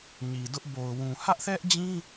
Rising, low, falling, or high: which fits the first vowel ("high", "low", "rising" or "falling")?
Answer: low